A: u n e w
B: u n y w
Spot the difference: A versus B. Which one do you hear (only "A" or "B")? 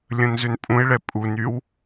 B